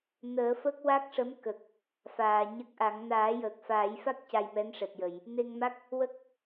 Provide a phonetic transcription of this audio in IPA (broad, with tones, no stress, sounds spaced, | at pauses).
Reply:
n əː˨˩˦ f ə˦˥ k̚ w a˦˥ k̚ ʂ ə˧˥ m k ə˨˩ k̚ | f aː˨˩˨ ɲ ə˦˥ k̚ ʔ a˨˩˦ ŋ n aː˨˩˦ j əː˨˩ k̚ f aː˨˩˦ j f a˦˥ k̚ c a˧ j m ɛ˧˥ n ʂ ɛ˨˩ t̚ j ə˨˩˨ j | n e˧ ŋ m a˦˥ k̚ | w ə˦˥ k̚